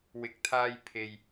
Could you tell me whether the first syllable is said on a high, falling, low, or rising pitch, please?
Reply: rising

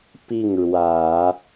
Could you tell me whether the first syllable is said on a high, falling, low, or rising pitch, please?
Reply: falling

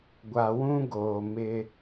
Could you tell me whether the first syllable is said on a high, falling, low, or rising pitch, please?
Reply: low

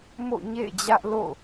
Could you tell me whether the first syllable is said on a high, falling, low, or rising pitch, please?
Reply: falling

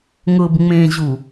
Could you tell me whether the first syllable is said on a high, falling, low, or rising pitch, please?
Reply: low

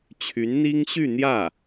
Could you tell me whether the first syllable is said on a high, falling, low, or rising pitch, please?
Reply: rising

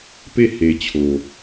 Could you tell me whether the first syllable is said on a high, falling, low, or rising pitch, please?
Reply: falling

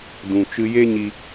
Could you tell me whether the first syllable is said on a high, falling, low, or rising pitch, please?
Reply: low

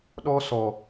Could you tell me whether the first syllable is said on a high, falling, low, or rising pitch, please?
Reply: high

